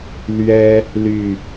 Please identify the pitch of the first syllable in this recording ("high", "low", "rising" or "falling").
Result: high